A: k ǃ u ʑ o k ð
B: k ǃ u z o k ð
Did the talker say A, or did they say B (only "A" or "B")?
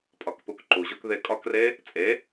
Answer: A